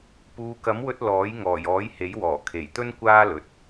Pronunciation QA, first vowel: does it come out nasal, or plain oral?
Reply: oral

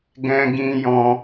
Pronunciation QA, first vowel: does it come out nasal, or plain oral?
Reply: nasal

